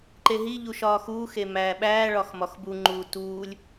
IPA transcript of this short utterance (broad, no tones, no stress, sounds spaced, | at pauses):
ǃ e ɦ i ʎ u ʃ ɒː x uː x e m æː ɓ æː ɭ ɒ x m ɒ x b u ŋ͡ǃ uː t uː lʲ